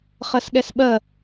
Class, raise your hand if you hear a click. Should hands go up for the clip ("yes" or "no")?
no